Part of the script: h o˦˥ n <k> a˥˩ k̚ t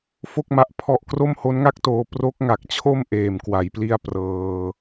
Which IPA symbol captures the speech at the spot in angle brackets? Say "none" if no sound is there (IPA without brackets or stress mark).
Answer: ŋ